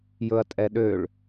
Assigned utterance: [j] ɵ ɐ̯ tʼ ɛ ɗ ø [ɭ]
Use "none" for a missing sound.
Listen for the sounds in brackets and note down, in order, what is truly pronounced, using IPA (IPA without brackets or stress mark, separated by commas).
j, ɭ